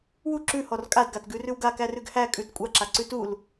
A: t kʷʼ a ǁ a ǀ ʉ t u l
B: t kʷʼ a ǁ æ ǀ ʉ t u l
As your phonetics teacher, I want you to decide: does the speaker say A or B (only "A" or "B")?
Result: A